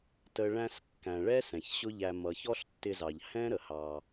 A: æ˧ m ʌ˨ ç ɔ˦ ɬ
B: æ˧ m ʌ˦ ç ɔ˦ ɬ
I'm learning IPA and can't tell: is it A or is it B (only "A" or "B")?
A